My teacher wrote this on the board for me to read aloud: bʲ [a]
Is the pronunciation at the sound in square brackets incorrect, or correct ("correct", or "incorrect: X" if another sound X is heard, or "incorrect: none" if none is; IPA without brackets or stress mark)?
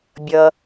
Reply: incorrect: ʌ